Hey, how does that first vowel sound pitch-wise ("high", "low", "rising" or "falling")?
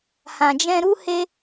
low